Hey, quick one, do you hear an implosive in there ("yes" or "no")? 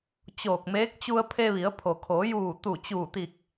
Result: no